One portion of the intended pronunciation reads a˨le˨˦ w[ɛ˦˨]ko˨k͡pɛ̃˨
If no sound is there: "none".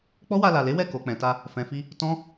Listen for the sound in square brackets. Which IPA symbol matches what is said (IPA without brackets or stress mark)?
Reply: ɛ˦˨